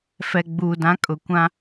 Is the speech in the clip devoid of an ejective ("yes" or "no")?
no